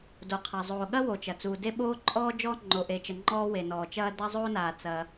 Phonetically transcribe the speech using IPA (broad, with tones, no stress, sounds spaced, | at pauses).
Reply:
d o˩ qʰ ɐ˩ zˤ oː˩ ɠ ɐ˦ w o˩ t͡ʃ ɐ˩ t͡s uː˩ d e˦ ɓ oː˦ ǃʼ ɔː˦ d͡ʒ ɔː˦ ŋ͡ǃ o˩ ʔ e˩ t͡ʃ ə˩ ŋ͡ǃ ɔː˦ w e˩ n ɔː˩ t͡ʃ ɐː˦ d ɐ˦ zˤ o˦ n aː˩ t͡s ɐː˩